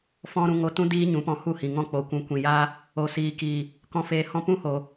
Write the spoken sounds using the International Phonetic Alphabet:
fɔ̃˦ɾũ˧ ŋo˧tũ˦ diː˦ɲũ˨˦pɔ̃˧ hu˦˨hĩ˨ŋɔ̃˦k͡po˨ kʷũ˨kʷĩ˨jaː˦ | o˨siː˨kiː˨ | kɔ̃˧feː˧ hɔ̃˦ pũ˦hoː˨

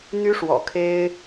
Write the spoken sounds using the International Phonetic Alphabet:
n̪y˥ʂwɔ̰˨˩kʰe˥ɪ̯

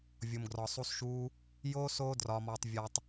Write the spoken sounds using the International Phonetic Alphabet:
vʲo˧mɡrɒ˧sˤu˦sʃuː˦ | joː˦s oː˦drɒː˧mɒː˧tˤ vʲɒ˧tˤ

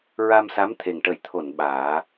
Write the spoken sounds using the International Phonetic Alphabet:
ɹa˧msa˧˥mt̪ʰe˨˩ŋʈə˨˩˦j t̪ʰo˨˩˨n ɓaː˨˩˦

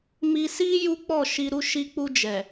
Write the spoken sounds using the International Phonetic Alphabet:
mi˧si˦ ju˦k͡pɔ˦˨ʃi˧ ɾu˧ʃi˧k͡pu˧ d͡ʒɛ˨

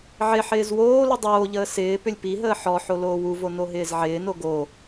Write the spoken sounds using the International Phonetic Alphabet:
ʕɪħɪːz woːlʏ dˤoːʎəː sɪː pʏlʲpiɦəː ħɔ ħoloːwuvo noɦɪːzʕɪːno ɡo

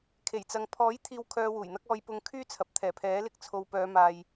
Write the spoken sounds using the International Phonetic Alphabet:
kʰe˨˩jt͡sɐ˨ŋ pʰɔː˨˥jt̪ʰiː˨w kʰœː˧wuː˨˩jn̪ɐ˥k̚ ɔː˧jpʊ˧ŋ kʰyː˥t͡sʰɐ˨p̚ t̪ʰɛː˨˩pʰɛː˨˥lɪ˧k̚ t͡sʰo˨wpœː˨˧ maː˧j

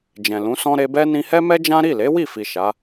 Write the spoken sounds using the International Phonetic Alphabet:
d͡ʒɛ̃˨lũ˨˦sɔ̃˦ ɾe˧bɛ˦ nĩ˧hɛ˦mɛ˦d͡ʒã˦ ɾi˦˨le˨˦ wi˦˨fi˨ ʃa˨˦

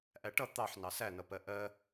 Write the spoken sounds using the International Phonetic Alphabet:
ʔæʈʌ t̪ɑħ nɑsænʌ pɜʔɜ

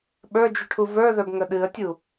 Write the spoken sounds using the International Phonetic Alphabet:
ɓə˞d͡ʒyʈʰu və˞ðə˞bŋə ɗɨə̯tʲu

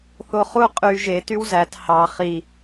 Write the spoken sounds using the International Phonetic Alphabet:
θoχu qʼy ʒe tywzæt hɑ χi

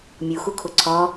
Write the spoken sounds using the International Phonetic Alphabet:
mʲuxukʰo ǀʰɒ

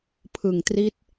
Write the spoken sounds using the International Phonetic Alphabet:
pʰɯ˨˩ŋtri˦˥t̚

